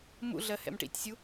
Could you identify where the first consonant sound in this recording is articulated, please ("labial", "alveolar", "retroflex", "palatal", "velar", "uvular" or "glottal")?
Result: labial